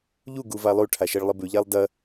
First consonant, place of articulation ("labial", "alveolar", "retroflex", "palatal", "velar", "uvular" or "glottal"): palatal